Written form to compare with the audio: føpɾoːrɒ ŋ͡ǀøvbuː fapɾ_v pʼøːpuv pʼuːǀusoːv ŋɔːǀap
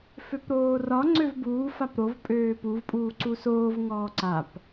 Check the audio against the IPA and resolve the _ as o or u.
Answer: o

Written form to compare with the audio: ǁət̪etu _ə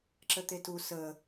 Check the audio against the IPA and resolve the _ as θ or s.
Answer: s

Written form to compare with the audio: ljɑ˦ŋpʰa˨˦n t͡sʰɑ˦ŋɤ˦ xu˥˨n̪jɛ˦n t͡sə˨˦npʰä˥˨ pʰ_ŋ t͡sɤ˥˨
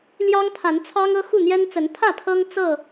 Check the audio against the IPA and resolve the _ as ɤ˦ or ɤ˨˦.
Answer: ɤ˦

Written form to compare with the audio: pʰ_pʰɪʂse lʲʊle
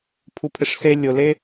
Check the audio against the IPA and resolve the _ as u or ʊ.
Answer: u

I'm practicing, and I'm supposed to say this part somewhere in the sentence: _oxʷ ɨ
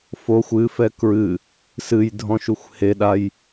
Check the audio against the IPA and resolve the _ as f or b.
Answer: f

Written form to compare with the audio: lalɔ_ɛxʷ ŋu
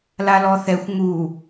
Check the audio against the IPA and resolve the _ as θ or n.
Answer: θ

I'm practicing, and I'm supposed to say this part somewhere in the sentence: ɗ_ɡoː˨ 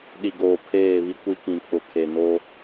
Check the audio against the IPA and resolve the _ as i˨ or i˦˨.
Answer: i˨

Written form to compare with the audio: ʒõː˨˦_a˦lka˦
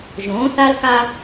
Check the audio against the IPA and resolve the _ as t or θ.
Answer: θ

